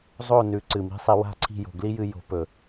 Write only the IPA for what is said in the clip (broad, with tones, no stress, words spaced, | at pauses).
zˤo˦˨nʉ˨˦ ǀɨ˨mi̤˦sˤi˧ wa̤˦˨ǀʰi̤˦˨jo̤˨ ɡli˦jɨ˧ jo̤˨˦pɵ˨